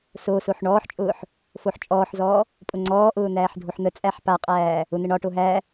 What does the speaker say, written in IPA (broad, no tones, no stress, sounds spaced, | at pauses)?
s o s o ħ ɳ ɔː ħ t͡ʃʼ ʊː ħ | f o ħ t͡ʃʼ ɔː ħ z ɔː | pʼ ʊ ŋ͡ǀ ɔː ʔ ʊː n̪ æː ħ dʱ o ħ n̪ ə t͡sʼ æ ħ p a qʼ æː | ʊ n̪ ə ɳ ɒ ʈ o ɦ æ